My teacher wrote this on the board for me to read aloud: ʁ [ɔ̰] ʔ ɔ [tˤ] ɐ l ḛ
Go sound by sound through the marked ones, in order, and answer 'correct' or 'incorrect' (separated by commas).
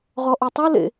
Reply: incorrect, correct